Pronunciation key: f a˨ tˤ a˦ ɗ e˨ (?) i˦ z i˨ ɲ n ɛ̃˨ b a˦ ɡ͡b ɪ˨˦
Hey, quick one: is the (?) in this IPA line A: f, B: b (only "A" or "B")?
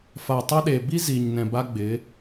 B